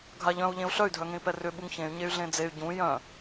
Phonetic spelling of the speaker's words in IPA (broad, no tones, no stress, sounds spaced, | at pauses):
ɡʱ a ʎ œ̃ u̯ ʎ ẽ u̯ ɬ œ y̯ dʱ œ ŋ ẽ i̯ p ɛ r ʏ ɓ u ŋ ç ẽ y̯ ɲ e y̯ ɮ ẽ d͡z e y̯ ɟ ũ j œ̃